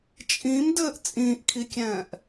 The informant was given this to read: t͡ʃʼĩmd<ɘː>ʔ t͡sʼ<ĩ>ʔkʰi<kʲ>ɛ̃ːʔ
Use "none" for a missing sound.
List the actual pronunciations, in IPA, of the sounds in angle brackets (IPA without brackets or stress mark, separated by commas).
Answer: ɘː, ĩː, kʲ